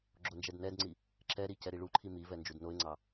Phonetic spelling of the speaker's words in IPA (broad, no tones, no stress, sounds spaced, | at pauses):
ɡ͡ǁ o n d͡ʒ ɛ d n ɛ d ŋ͡ǀ i | ǁ ɛ ɾ i c ɛ ɾ i ɭ u ǃʰ i m i v ɛ n d͡ʒ u d n o ɪ̯ ŋ͡ǀ ɑ